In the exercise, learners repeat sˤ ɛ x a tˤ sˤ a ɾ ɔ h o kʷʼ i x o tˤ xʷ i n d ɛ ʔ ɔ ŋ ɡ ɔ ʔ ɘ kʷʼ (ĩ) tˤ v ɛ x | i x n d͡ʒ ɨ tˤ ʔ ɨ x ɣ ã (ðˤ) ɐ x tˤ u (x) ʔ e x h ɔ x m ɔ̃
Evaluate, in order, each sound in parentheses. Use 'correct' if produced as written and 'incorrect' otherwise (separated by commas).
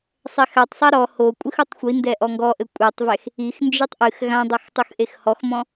incorrect, incorrect, correct